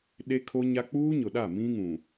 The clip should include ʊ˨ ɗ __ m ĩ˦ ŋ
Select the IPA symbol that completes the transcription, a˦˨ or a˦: a˦˨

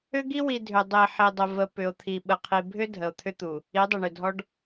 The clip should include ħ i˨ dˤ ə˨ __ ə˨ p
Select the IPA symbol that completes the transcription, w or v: v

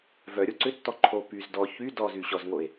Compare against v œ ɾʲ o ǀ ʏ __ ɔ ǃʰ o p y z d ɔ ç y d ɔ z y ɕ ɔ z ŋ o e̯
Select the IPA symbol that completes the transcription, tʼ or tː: tː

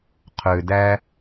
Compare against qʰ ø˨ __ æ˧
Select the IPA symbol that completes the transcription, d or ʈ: d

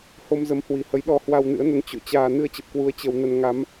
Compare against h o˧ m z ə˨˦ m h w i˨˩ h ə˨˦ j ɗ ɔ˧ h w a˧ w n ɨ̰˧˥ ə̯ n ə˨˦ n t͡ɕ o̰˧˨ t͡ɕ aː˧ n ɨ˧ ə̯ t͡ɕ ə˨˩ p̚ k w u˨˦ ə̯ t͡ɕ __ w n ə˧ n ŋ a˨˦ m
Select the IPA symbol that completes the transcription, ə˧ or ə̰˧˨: ə˧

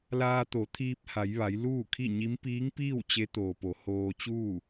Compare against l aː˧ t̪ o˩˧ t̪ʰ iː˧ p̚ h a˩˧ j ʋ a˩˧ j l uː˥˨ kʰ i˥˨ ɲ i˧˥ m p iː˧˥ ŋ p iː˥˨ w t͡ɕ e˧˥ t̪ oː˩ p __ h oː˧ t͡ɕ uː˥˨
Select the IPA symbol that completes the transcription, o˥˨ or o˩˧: o˩˧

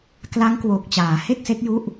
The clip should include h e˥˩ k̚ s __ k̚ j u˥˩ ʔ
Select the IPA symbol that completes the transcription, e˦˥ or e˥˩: e˦˥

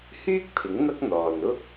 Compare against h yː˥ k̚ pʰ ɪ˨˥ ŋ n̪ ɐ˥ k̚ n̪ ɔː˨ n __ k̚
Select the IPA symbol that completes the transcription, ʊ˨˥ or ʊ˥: ʊ˥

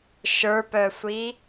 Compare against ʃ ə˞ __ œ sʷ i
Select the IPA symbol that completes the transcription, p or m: p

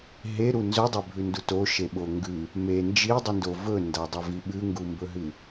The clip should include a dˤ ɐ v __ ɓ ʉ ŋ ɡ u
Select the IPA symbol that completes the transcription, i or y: i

